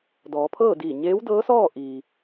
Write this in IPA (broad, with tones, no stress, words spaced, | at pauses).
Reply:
dɔː˩˧pʰɤː˥˨diː˧˩ ɲeː˧˥wdɤː˧˥sɔː˥˨ ʔiː˩